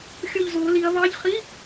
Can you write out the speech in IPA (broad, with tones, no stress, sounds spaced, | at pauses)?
xʲ o˦˨ ʎ z oː˨˦ l i˨˦ ɐ̯ β ɑ˧˥˧ ʎ χ i˧˥˧